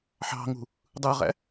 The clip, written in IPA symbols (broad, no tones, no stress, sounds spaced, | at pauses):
ħ ɑ̤ ŋ ṳ | dˤ ɯ ʁ æ̰